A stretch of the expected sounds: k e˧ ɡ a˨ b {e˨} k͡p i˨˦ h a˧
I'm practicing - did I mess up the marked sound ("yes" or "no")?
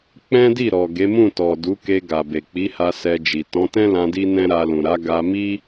no